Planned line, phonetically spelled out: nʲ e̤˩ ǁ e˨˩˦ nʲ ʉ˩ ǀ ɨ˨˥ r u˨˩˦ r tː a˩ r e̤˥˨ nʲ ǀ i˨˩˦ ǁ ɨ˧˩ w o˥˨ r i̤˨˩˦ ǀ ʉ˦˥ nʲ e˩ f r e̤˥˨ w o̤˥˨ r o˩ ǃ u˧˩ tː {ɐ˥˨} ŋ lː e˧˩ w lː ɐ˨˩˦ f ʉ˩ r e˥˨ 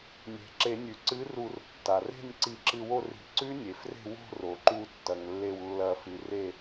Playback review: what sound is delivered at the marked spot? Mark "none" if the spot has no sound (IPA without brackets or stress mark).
ɐ˩